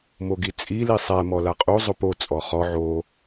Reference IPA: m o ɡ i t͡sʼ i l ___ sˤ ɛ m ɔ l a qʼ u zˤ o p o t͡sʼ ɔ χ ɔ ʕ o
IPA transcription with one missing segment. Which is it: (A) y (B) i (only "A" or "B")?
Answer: B